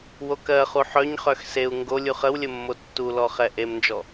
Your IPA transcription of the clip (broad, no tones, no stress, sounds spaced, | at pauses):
w o k ɜ χ u ħ œ ɲ χ œ x s e u̯ ŋ ɡ o lʲ u χ ə w lʲ ə mː o tː u l ɔ χ ɛ ʔ e m n d͡ʒ ɔ